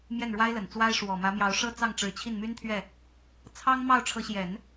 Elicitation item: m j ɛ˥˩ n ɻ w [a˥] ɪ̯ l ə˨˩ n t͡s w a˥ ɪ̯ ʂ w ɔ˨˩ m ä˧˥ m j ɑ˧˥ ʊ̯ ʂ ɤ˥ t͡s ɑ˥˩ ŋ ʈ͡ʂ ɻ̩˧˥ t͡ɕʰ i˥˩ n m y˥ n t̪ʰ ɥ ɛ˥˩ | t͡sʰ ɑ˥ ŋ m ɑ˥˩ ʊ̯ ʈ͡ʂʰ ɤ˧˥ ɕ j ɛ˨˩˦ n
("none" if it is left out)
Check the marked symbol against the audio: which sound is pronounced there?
a˥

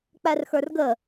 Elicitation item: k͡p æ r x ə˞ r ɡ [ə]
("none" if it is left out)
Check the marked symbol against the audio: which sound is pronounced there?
ə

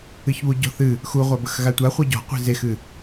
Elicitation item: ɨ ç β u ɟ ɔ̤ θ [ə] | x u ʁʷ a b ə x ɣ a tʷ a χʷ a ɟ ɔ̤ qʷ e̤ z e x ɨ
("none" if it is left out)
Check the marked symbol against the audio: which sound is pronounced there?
ɨ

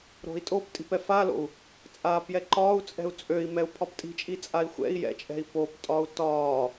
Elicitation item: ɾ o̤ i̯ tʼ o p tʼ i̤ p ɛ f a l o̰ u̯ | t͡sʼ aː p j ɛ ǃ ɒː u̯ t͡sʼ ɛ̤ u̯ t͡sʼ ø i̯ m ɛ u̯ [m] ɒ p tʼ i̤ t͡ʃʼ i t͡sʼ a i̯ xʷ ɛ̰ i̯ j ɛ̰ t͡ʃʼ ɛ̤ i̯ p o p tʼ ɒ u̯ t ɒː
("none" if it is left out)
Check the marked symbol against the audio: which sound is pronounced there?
pʰ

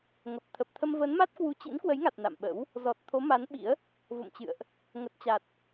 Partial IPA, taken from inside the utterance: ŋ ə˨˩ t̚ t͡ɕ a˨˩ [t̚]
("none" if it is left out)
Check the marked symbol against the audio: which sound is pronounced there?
t̚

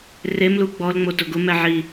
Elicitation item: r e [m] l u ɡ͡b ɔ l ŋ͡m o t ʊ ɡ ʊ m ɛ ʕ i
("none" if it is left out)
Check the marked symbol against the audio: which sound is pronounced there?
m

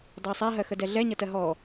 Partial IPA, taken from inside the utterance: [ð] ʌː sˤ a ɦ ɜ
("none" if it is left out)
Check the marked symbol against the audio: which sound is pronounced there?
dˤ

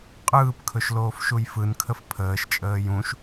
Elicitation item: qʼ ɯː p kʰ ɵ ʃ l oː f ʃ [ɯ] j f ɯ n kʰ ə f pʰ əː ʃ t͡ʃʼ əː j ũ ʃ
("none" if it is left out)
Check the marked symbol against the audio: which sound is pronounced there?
u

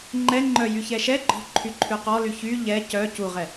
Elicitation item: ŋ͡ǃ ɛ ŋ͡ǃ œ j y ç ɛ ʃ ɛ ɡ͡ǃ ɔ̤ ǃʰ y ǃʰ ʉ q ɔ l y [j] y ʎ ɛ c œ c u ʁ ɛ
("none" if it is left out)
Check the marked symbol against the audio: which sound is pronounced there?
ç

